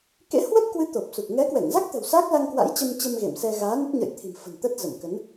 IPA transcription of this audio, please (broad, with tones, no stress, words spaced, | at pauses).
kḛ˧˥hwə˦˥t̚kwɨ˨˦ t̪o˨˩p̚su˨˩k̚ ŋɛ˨˦kwɛ˧˩ŋza˦˥k̚t̪ə̤˨˩w saː˦˥k̚la˧ŋkwa̰˧˥j t͡ɕə˧mt͡ɕə˧m ɣḛ˧˨msɛ˧ ɣaː˨˦nə˦˥t̚ɲə̰˧˨jt̪ʰi̤˨˩m fə̤˨˩nt̪ə˦˥t̚zə˧˩mkə˨˦n